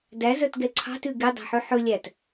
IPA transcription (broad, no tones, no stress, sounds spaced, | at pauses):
d æ z œ t ɡ ɛ ǀʰ ɑ̤ t ʉ ɡ e dˤ æ̤ ħ ø ħ ɵ lʲ æ t